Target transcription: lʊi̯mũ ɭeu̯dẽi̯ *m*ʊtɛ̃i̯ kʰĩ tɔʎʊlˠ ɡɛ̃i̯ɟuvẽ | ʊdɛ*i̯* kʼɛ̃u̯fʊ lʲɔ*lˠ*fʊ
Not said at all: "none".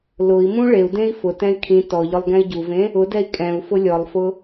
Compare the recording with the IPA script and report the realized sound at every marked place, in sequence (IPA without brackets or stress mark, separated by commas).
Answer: f, i̯, lˠ